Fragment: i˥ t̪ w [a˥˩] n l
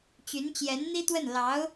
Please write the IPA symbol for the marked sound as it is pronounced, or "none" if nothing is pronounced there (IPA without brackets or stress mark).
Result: ə˥˩